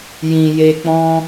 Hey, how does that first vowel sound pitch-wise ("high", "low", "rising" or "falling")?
low